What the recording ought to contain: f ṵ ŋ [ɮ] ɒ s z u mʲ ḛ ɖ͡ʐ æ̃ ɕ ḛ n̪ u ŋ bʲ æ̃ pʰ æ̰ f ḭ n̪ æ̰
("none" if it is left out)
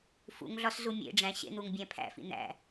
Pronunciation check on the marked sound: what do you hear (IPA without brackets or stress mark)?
ɮ